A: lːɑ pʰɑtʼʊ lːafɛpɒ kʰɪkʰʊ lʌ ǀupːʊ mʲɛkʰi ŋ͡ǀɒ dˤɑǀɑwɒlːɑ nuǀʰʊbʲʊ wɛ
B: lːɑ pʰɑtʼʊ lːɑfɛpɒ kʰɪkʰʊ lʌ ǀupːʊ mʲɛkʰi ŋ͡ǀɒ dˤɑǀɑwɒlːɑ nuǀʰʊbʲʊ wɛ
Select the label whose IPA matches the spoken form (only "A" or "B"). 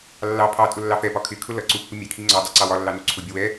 B